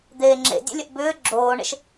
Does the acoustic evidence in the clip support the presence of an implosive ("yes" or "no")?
no